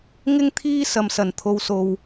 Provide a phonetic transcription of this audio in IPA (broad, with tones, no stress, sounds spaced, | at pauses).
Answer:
ŋ ɪ˥ ŋ t̪ʰ iː˥ s ɐ˨ m s ɐ˨˩ n t̪ʰ o˨ w s o˨ w